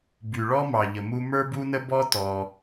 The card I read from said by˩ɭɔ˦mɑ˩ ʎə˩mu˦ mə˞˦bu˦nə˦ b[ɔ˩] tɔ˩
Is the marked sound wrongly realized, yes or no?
yes